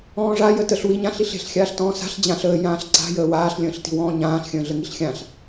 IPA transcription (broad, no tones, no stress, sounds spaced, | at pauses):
ɔ̃ː ʐ a j ə t ə ɬ w i ɲ ã ɬ i ɬ e̤ ɬ xʲ aː ɬ t ɔ̃ː s a̤ ɬ d͡ʑ ã ɬ əː j ãː ɬ ǀ a̤ j əː w aː ɬ lʲ ə̃ː ɬ t i̤ w ɔ̃ː ɲ ãː ɬ xʲ ə̃ː ɮ ə ŋ i ɬ xʲ ã ɬ